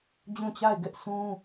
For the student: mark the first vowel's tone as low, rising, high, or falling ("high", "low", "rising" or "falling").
falling